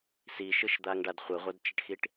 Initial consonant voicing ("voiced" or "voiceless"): voiceless